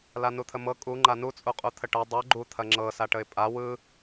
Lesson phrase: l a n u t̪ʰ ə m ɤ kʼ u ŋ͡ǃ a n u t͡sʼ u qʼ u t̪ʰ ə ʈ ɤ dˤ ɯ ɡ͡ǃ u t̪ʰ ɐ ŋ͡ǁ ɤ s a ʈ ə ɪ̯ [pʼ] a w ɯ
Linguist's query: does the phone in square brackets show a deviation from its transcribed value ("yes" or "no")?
no